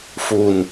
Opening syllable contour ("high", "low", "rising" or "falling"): low